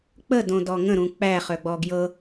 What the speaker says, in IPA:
k͡p ə d õ d ɔ ŋ ə̃ ɾ ũ k͡p æ χ œ ɡ͡b ɔ ɡ j ɤ

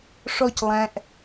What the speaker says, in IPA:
ʂ ɔ c lˠ æ̃ ʔ

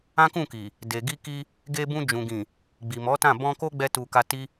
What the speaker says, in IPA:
ã˦ k ũ˦˨ k i˨ | d e˨ ɡ i˧ k i˧ | ɡ e˧ b ũ˧ d͡ʒ ũ˨ ɡ ĩ˨ | ɡ͡b i˨ m ɔ˨˦ t ã˦˨ b ɔ̃˧ k o˦ ɡ͡b ɛ˧ t u˧ k a˧ t i˦

